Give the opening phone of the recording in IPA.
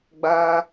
ɡ͡b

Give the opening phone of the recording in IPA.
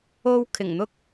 o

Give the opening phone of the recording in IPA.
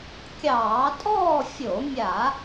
kʲ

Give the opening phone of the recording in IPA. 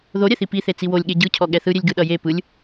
ð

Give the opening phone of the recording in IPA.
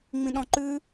ŋ͡m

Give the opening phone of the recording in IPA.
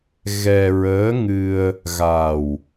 ɣ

